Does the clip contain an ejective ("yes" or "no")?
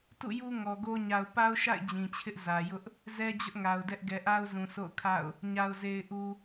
no